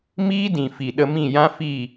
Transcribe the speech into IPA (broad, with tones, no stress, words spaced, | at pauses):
miː˦dĩ˨fi˨ ɗə˧mĩ˦˨ jã˦fi˦˨